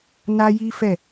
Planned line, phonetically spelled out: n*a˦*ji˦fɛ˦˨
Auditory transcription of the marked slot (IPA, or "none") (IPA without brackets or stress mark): a˦